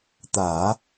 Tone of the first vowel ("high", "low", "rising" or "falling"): low